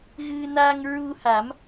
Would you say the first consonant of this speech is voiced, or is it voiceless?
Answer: voiced